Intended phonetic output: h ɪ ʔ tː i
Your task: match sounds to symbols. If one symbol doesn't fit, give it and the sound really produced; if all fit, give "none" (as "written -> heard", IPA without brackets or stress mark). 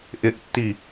h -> ʔ